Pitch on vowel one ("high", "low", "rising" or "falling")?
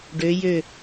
rising